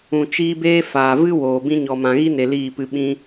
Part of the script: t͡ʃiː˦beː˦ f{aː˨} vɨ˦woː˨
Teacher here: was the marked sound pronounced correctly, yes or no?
yes